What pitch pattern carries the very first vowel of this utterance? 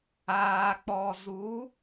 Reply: low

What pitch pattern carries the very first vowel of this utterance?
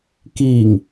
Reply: low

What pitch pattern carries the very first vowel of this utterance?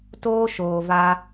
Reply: high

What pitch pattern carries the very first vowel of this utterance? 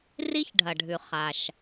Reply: high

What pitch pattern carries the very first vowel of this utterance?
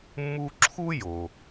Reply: high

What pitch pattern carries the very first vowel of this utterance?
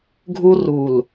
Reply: high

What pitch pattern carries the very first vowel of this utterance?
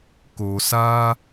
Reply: low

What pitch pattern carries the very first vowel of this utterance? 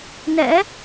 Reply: rising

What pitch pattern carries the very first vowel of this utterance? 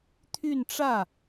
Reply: falling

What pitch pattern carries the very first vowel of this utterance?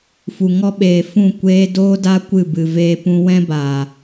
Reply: low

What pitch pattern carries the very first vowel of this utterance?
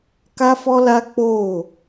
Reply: high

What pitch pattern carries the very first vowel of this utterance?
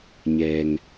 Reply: low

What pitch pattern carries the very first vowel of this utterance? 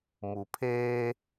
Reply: low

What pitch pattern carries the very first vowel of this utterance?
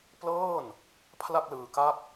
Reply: falling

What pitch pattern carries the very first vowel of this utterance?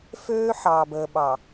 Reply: high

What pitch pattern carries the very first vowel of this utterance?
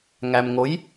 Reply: low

